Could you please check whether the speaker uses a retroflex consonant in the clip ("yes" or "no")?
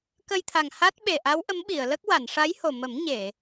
yes